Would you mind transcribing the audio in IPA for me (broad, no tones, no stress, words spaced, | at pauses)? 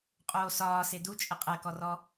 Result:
qʼoːsɒːse dut͡ʃʼɘ qʼɜkɔrɔ